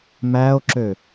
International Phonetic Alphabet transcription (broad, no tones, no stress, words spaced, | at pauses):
mæo̯ǁø